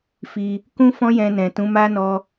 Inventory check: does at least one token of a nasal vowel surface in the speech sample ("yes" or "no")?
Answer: yes